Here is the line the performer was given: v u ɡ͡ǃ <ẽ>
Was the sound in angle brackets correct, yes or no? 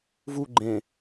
yes